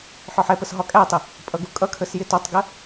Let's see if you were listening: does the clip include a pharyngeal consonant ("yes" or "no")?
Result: yes